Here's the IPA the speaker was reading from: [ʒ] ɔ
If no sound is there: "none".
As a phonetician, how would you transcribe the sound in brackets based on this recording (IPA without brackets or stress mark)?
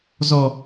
z